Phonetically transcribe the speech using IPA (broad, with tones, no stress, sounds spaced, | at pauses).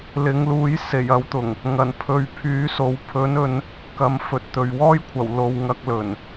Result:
l ɪ˨˥ ŋ l uː˨˥ j s e˨˩ j ɐ˨˥ w t̪ ʊ˨˩ ŋ | ŋ ɐ˨˩ n pʰ ɵ˨˧ ɥ pʰ yː˨˥ s o˨˥ w pʰ ɵ˨˥ n ɵ˨˧ n | k ɐ˨ m f ɵ˨ t̚ t̪ ɵ˨ ɥ w ɔː˥ j kʷʰ ɐ˨˩ w l o˨ w ŋ ɐ˧ k̚ l ɵ˨˩ n